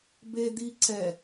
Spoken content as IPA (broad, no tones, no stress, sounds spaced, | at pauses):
b e d̪ i ǀ ɛ